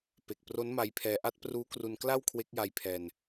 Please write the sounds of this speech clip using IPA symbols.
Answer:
p e˨˩ k̚ p r o˦˥ n m a˧ j pʰ ɛː˧ ʔ a˦˥ t̚ p r uː˦˥ k r u˧ n k l a˥˩ w kʰ w e˦˥ k̚ j a˧ j pʰ ɛː˧ n

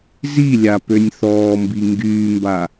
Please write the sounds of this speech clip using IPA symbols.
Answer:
z i lʲ a p ø nʲ θ ɔː m b i ŋ ɡ yː m b a

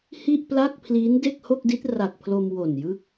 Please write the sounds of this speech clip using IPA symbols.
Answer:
h i˥˩ ʔ p l a˥˩ k̚ pʰ l iː˦˥ n d e˥˩ k̚ h o˥˩ k̚ d i˦˥ t̚ r a˨˩ k̚ pʰ l o˧ m w o˨˩ n j ɯ˦˥ k̚

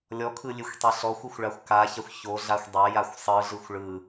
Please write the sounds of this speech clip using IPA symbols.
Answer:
lʲ ɔ kʰ ɯ lʲ e xʷ tˤ e ɬ ɔ xʷ ɯ xʷ ɭ a xʷ k a ç a xʷ ç o ɮ a xʷ dˤ a j a xʷ sˤ ɯ ɮ ɯ xʷ ɭ ɯ

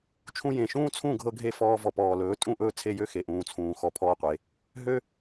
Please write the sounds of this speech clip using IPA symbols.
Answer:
t͡ʃʰ ũ˧ j ẽ˨ ʃ ũː˦ t͡sʰ ũ˦˨ ɡʱ ɤ˧ ɡʱ e˧ f ɔː˧ v ɔ˨ p ɔː˨ l ɵː˨˦ tʼ ũ˦˨ ʔ ɵː˦ t͡sʰ e˦˨ j ø˦ x e˨ ʔ ũː˨ t͡sʰ ũː˨ x ɔ˧ pʰ ɔː˦ qʷ e˨˦ | ɦ ø˦

